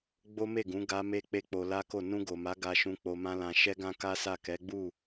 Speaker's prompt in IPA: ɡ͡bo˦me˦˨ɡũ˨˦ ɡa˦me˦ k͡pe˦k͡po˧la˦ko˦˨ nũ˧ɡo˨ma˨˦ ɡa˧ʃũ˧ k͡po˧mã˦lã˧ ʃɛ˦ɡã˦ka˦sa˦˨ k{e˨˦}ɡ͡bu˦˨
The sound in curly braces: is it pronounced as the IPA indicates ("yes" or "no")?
no